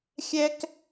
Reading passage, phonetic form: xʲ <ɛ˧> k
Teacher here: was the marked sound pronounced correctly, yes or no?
no